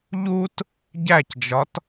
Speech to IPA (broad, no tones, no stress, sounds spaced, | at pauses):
ʎ u t | ɟ æ c d͡ʒ ɒ t